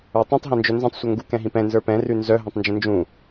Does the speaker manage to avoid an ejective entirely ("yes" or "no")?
yes